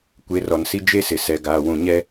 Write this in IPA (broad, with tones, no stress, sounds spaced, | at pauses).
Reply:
kʷ e˨˦ r ɔ˨ n s i˦ d͡ʒ e˦ s ɪ˨ s ɛ˨ ɡ aː˨ w ũ˨ ɲ ɛ˦